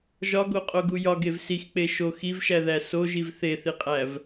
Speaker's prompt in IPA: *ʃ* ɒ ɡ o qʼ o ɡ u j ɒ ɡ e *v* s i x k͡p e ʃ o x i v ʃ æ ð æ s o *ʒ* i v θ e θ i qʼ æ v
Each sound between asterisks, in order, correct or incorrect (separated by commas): incorrect, correct, correct